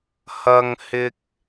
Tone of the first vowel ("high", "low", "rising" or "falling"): high